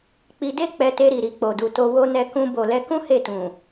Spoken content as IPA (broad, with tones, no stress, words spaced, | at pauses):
k͡pi˧de˦ k͡pɛ˧te˧ɾi˨ ɾi˨k͡po˨du˨ to˧ wo˧nɛ˧kũ˧ bo˨lɛ˧kũ˦ he˦˨tũ˨